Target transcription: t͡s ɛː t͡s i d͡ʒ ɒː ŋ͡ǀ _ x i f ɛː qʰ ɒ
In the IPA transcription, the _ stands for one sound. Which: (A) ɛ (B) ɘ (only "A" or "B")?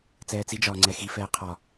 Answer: A